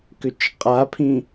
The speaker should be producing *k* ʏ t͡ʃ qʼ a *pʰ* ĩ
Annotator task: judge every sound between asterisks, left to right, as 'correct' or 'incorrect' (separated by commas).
correct, correct